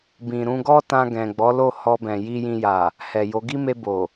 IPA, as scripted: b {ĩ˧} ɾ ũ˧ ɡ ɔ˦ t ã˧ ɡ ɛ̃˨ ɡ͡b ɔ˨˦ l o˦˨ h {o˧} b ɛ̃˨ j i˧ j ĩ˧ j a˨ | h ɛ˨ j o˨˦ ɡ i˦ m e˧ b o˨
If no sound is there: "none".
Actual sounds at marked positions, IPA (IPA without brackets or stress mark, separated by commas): ĩ˨, ɔ˧